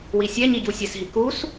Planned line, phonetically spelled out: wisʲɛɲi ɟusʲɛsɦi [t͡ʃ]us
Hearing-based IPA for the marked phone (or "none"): k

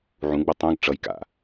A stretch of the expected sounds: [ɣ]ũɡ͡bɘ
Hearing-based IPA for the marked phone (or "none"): ʕ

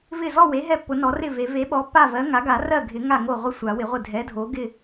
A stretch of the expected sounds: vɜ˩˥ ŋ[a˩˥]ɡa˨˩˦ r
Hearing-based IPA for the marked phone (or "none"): a˩˥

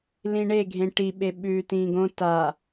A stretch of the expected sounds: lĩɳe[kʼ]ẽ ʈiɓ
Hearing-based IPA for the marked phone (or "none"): ɡʱ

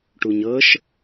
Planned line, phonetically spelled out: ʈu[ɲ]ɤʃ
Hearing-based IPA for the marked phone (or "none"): ɲ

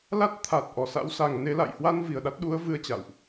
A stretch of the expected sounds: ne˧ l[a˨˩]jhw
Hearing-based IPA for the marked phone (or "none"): a̰˧˨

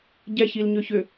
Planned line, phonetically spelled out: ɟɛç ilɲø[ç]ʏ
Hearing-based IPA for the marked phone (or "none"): ç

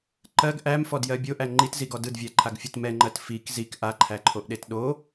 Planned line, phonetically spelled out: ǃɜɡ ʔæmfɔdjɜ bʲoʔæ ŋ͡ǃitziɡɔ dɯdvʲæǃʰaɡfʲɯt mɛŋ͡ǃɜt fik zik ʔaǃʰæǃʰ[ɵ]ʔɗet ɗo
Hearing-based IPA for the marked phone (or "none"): o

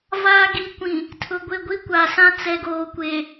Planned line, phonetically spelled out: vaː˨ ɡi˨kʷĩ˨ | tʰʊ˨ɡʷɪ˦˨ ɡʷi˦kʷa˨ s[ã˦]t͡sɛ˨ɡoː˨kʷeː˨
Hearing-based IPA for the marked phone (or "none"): ã˦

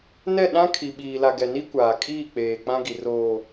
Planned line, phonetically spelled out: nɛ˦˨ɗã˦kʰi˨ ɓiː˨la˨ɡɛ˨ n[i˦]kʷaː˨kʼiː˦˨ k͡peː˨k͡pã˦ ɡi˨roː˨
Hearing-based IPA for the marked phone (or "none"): i˦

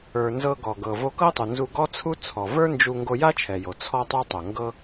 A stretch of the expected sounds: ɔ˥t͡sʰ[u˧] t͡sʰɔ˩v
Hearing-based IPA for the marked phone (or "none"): u˥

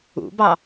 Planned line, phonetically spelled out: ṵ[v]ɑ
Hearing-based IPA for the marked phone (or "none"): b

